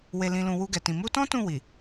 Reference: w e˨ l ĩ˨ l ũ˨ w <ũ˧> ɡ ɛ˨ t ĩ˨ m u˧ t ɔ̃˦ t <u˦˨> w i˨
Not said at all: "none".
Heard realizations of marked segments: u˧, ũ˦˨

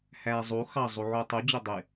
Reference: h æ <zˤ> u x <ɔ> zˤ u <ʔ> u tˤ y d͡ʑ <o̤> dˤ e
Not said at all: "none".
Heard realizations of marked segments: zˤ, ɑ, ʕ, o

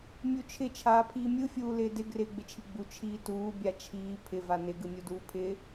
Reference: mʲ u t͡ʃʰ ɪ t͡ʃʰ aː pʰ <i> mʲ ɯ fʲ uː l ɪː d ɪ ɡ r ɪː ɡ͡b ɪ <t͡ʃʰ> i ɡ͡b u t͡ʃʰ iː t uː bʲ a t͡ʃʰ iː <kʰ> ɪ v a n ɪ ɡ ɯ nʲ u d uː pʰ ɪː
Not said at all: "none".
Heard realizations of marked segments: iː, t͡ʃʰ, pʰ

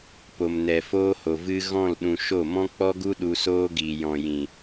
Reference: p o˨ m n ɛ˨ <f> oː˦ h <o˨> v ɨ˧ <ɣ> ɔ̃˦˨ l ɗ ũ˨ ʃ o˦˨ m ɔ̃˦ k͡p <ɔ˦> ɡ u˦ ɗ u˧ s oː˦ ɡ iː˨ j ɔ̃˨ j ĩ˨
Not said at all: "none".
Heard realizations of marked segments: f, o˨, ɣ, ɔ˦

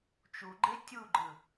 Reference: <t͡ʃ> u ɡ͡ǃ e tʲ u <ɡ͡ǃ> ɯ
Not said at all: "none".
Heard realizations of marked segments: t͡ʃ, ɡ͡ǃ

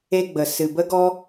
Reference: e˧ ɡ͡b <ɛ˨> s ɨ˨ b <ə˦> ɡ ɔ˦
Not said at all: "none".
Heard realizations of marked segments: ə˨, ə˦

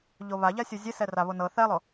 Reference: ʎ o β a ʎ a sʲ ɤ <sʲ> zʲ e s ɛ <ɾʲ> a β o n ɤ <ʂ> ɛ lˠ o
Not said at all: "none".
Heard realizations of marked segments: none, r, θ

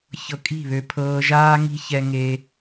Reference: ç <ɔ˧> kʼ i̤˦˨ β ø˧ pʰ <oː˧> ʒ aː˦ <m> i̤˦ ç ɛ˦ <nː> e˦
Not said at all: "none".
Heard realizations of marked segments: ɤ˧, ɤː˧, ŋ, ŋ

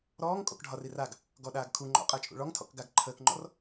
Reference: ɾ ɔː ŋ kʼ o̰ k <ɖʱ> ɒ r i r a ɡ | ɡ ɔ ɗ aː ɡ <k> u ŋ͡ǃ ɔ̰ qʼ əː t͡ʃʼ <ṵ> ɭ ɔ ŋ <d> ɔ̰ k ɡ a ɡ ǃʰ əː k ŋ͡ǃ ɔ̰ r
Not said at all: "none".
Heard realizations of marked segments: ɖʱ, kʰ, ṵ, tʰ

